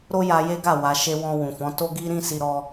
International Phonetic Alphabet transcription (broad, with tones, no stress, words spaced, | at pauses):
ɾo˦ja˧je˦ɡa˦˨ wa˨ ʃe˧ wɔ̃˧ wũ˨fɔ̃˨˦ to˦ɡi˦ ɾĩ˦si˧ɾɔ˧